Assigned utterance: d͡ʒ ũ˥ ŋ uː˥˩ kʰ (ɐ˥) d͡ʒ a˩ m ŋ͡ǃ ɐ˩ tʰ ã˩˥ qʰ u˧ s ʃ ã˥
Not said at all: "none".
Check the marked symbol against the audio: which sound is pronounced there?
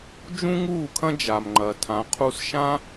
ɐ̃˥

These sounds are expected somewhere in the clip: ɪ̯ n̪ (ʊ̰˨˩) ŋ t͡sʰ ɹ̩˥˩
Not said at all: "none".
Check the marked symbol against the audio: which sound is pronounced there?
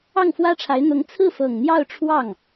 ʊ˧˥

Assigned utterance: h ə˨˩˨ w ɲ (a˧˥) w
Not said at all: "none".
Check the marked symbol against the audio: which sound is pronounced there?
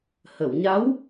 a˧˥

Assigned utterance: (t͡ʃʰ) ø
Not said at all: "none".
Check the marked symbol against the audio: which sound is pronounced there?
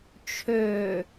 t͡ʃʰ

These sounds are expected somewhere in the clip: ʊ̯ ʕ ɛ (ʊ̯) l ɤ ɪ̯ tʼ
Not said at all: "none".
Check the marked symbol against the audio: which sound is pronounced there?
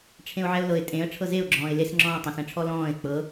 ʊ̯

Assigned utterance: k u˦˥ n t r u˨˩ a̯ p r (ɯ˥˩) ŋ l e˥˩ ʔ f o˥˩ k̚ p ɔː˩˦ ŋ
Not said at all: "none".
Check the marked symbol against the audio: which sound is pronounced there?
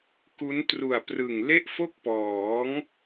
ɯ˨˩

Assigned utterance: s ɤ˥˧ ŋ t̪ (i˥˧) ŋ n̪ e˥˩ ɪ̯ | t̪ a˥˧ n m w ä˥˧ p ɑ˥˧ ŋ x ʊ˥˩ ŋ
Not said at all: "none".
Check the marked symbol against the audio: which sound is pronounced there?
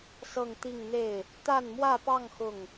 i˥˧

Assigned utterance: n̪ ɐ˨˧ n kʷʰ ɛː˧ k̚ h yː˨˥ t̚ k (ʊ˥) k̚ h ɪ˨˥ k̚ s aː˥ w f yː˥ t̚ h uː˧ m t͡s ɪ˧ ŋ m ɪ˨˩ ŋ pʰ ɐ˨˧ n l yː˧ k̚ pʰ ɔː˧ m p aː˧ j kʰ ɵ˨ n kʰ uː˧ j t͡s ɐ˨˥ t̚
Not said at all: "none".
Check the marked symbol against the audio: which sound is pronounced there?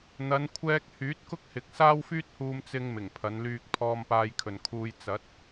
ʊ˥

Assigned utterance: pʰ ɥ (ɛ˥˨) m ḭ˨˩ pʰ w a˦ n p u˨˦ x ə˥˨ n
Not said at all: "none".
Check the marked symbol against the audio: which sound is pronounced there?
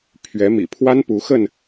ɛ˨˦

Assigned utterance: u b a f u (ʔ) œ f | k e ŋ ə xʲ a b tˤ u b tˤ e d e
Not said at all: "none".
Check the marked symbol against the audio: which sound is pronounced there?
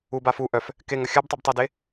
ʔ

